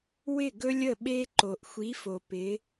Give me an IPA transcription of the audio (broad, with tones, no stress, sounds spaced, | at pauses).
w ɪ˦˨ ɡ ɵ˦ lʲ ə˦˨ ɓ e˦ ǃ o˨ ʔ xʷ i˨˦ f o˨ p ɪ˨˦